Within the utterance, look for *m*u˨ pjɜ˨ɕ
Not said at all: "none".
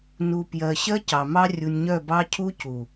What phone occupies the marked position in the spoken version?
n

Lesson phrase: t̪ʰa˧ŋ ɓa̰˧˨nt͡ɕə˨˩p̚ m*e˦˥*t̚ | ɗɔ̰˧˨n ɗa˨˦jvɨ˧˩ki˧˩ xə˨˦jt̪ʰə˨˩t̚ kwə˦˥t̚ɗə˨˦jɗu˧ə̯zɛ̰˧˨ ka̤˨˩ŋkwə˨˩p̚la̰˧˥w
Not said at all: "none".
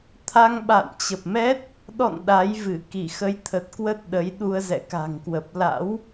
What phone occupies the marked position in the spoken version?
ɛ˦˥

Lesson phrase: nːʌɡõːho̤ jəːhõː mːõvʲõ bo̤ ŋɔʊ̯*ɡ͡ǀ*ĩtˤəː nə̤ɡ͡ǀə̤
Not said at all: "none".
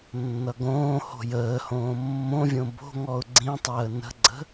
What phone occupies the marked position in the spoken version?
ɡ͡ǀ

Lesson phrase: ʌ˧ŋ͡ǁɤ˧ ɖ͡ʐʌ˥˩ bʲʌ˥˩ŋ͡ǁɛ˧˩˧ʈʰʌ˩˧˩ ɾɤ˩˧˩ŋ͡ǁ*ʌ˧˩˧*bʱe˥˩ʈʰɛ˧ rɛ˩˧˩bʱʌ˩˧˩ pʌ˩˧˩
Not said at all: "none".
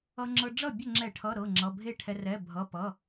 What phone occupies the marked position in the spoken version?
ʌ˩˧˩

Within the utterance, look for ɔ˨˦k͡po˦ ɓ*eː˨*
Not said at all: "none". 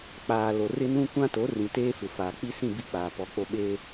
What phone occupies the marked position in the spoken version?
eː˦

